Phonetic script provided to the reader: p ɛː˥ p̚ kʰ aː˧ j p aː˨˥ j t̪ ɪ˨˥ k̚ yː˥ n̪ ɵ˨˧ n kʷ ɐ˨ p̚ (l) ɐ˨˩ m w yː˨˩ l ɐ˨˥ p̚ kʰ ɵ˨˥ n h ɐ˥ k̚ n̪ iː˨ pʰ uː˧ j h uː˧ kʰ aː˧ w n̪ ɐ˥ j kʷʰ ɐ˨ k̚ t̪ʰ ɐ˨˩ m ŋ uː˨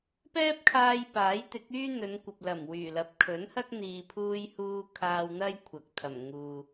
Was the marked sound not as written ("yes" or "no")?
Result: no